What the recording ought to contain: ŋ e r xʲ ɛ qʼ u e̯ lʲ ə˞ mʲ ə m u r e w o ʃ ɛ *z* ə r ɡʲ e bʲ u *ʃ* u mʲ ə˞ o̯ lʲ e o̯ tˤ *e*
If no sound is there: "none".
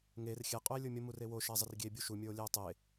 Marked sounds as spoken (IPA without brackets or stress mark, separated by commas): zˤ, ʃ, e